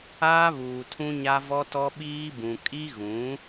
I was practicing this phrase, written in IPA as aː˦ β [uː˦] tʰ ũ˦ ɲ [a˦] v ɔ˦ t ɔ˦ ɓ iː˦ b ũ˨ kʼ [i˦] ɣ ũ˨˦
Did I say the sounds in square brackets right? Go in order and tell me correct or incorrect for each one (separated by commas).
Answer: incorrect, correct, correct